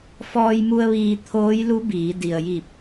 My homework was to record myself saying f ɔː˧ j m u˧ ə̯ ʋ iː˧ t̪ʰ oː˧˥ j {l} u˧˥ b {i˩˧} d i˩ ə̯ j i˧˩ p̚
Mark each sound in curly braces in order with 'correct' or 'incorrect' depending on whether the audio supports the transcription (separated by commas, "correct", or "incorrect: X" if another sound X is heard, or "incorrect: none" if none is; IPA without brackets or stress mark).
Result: correct, incorrect: iː˩˧